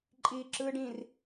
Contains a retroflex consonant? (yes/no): yes